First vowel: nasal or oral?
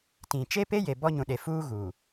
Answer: nasal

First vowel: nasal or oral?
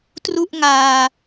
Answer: oral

